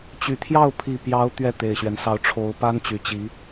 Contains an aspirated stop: yes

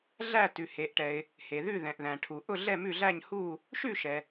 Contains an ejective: no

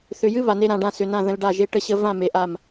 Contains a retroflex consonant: yes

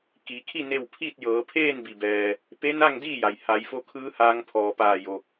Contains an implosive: no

